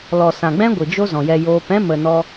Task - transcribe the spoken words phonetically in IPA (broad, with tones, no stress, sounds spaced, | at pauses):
l ɔ˨ s ã˨ ɡ͡b ɛ̃˦ ɡʷ ɨ˨ d͡ʒ o˦ z ɔ̃˨ j ɛ˧ j oː˧ p ɛ̃˦ m ə˨ n ɔ˧